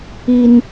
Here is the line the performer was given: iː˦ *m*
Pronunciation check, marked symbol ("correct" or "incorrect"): incorrect